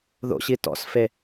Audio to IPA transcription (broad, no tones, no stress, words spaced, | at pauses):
ðo̰ɕi tɔ̰sfe